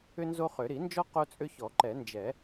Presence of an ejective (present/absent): present